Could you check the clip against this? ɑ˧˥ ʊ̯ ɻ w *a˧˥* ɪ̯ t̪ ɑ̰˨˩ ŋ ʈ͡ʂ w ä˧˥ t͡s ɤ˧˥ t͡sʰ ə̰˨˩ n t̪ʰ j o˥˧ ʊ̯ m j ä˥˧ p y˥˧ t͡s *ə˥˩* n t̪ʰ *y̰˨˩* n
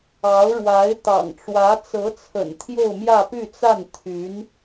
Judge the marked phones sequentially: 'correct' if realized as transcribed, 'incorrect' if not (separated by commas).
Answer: correct, incorrect, incorrect